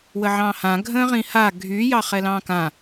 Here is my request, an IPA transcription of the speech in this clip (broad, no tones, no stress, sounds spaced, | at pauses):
w ə ʕ ɑ̃ h ã ɡʱ ə̃ː ʁ ĩ h a ɡʱ y j ɑ χ ɛ l ɑ̃ː k ã